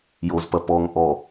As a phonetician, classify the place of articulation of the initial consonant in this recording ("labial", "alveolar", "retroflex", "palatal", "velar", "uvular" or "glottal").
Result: palatal